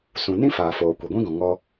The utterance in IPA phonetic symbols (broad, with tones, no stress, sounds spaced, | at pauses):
s ũ˨ n ĩ˦ f aː˨ f oː˨ kʷ ɛ˨ ɡʷ ĩ˦ ɡ ɔ̃˨ ŋ ɔ˦